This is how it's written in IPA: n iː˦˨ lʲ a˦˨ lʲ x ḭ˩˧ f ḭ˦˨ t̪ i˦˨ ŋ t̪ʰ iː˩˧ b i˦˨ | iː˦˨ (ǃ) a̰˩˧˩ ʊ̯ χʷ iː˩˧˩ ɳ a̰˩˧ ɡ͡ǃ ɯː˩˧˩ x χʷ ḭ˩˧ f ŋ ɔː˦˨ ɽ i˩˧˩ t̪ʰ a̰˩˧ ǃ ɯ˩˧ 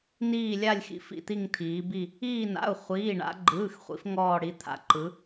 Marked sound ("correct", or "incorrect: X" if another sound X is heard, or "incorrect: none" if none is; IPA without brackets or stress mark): incorrect: n